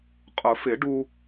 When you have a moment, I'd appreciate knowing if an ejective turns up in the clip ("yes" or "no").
yes